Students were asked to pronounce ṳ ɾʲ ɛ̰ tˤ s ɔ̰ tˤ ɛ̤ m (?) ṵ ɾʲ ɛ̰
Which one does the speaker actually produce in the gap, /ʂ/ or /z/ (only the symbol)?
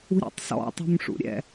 ʂ